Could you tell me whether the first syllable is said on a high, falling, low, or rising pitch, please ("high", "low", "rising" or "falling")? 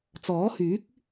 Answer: rising